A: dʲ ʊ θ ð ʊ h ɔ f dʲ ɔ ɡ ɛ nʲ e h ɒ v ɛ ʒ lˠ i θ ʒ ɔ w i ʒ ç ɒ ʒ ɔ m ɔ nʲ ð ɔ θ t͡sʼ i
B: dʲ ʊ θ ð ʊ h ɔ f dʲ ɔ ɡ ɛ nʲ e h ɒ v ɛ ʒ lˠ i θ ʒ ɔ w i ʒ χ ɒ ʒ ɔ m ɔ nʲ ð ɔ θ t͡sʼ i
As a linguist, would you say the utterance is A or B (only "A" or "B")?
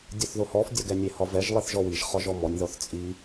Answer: B